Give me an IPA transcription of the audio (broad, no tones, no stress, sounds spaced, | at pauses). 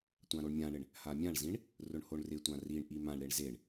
tʷ ã ɾ o ɳ mʲ ã ɳ ɪ ɳ | h a mʲ ã ɳ z ĩ ɳ | r ʊ ɳ h o ɳ r ɪ tʷ ã r i ɳ ʔ i m ã ɳ ɾ e ɳ z e ɳ